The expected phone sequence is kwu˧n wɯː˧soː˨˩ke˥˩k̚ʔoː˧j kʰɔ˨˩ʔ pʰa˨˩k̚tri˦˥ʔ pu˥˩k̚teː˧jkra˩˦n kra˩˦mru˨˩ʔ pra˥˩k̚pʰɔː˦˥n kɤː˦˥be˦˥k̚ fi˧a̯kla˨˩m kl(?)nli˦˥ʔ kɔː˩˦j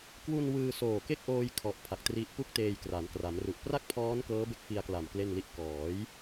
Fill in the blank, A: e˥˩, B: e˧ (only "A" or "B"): A